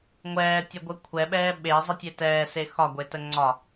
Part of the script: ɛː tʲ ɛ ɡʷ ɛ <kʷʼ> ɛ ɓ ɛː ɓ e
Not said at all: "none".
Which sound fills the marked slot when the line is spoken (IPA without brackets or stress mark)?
kʷʰ